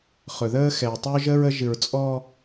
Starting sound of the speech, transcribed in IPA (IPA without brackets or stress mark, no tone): χ